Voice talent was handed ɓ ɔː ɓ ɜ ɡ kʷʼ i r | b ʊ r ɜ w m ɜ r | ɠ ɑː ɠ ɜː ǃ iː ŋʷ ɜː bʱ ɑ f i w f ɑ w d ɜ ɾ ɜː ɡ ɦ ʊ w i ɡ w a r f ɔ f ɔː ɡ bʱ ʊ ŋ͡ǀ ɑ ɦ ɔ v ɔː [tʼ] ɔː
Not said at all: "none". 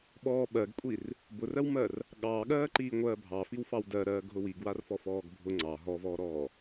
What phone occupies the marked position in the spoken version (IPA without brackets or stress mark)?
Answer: ɾ